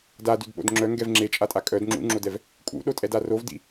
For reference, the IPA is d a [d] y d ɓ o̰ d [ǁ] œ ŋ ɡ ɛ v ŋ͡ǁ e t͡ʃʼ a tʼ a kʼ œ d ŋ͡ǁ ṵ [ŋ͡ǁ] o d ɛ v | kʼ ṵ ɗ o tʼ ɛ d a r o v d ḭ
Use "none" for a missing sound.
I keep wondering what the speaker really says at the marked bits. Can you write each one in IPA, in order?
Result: d, ŋ͡ǁ, ŋ͡ǁ

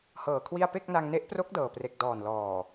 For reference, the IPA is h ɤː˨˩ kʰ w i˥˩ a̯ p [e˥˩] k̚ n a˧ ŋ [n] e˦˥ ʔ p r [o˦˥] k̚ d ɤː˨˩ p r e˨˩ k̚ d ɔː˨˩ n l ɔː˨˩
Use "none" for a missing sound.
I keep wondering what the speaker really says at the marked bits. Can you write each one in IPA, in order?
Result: e˥˩, n, o˦˥

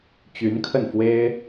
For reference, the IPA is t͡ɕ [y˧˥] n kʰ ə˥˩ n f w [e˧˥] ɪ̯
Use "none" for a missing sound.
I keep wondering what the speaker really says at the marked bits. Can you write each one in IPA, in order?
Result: y˧˥, e˥

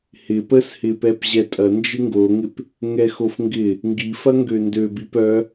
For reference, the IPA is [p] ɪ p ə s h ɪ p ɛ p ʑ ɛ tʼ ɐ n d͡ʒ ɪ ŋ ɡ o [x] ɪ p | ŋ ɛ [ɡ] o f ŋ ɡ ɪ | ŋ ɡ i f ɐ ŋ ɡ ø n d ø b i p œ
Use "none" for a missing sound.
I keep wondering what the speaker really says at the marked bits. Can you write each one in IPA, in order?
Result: h, ŋ, x

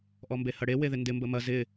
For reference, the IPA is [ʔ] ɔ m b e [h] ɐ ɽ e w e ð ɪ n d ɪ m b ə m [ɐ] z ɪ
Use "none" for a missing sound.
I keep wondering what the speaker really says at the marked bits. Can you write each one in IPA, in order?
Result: ʔ, h, ɐ

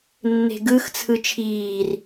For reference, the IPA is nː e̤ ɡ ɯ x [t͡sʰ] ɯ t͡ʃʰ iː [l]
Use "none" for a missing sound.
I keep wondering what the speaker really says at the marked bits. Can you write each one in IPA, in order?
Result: t͡sʰ, r

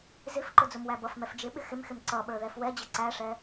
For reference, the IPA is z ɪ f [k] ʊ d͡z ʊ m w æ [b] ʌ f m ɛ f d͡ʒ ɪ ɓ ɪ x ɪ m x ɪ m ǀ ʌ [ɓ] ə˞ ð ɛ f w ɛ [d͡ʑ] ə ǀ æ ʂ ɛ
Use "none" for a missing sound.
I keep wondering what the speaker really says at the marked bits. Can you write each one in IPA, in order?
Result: ǃ, b, ɓ, d͡ʑ

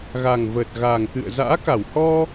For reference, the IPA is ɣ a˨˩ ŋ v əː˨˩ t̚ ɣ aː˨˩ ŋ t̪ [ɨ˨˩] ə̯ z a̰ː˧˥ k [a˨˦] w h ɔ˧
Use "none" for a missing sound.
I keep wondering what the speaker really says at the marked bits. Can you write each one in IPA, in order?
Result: ɨ̰˧˨, a˧˩

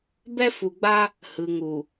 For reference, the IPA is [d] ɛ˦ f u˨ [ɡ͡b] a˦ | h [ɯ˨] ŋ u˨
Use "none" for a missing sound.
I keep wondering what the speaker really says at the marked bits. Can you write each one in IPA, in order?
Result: b, ɡ͡b, ɯ˨

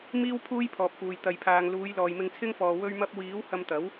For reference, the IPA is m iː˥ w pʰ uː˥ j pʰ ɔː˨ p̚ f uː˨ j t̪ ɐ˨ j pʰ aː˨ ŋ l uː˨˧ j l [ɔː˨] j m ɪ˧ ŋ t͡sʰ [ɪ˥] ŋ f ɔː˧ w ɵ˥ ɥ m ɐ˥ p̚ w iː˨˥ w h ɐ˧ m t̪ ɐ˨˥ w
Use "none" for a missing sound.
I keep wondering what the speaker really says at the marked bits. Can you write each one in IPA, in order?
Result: ɔː˨, ɪ˥

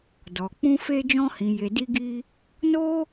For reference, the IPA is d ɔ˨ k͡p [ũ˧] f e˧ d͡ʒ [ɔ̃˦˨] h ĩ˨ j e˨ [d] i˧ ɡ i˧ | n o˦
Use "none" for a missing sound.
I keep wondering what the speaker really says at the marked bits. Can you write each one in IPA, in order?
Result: ũ˧, ɔ̃˧, d

